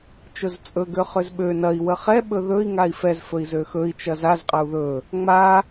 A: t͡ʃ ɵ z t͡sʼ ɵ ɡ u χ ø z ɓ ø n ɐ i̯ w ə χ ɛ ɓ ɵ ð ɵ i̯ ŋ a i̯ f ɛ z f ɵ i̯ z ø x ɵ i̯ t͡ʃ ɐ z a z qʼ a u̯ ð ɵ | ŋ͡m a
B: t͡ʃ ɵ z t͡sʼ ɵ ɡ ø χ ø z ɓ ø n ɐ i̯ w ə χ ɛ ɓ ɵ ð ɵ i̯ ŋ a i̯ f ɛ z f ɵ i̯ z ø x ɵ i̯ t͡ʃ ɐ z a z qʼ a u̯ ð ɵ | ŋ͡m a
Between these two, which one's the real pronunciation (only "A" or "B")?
B